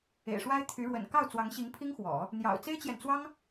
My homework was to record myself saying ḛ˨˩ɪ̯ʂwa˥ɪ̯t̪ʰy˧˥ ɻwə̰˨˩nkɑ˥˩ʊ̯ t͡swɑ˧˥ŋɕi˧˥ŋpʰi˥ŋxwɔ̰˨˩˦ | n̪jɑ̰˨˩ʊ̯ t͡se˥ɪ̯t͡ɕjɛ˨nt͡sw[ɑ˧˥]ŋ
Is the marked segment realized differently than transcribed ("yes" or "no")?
yes